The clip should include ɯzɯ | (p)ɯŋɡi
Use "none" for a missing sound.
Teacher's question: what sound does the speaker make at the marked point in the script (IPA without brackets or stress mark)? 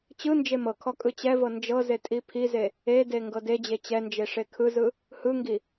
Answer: h